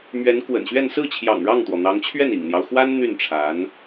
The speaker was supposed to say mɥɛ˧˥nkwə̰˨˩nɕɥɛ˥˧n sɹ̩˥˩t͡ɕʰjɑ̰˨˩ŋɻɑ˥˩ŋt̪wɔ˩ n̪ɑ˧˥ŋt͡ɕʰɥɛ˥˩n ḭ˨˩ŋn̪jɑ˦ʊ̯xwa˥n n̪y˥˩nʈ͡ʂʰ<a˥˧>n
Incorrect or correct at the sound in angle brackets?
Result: incorrect: a˧˥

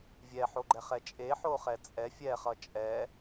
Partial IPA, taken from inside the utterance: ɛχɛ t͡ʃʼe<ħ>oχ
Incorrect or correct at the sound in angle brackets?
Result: correct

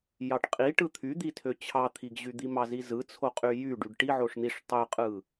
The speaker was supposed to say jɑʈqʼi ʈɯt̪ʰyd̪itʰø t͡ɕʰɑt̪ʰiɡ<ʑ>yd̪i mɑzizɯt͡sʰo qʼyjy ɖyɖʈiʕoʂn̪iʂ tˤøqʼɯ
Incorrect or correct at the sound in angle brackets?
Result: correct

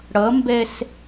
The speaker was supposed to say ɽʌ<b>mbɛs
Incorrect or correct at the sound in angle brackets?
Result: incorrect: none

